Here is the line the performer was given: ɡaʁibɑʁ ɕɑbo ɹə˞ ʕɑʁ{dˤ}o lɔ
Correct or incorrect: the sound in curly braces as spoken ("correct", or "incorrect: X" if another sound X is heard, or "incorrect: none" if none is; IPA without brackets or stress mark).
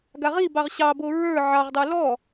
correct